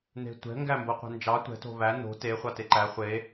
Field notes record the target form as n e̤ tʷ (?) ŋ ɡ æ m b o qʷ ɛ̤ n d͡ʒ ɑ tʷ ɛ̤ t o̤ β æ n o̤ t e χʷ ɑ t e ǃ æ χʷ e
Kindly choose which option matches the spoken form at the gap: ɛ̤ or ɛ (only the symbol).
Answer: ɛ̤